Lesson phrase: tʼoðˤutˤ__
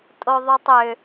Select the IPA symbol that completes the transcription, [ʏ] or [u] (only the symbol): ʏ